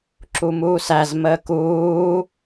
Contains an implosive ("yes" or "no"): no